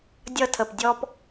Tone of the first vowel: high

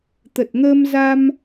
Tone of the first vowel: low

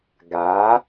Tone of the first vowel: rising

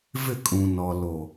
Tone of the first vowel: falling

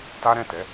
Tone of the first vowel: high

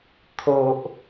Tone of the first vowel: low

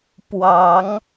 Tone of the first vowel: rising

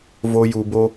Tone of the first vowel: high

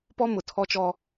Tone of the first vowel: high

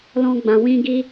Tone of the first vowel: high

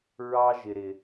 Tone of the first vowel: high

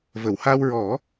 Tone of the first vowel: low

